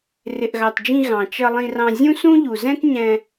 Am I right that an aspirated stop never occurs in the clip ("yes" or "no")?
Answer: yes